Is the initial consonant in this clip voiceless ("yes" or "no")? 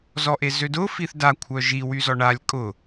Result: no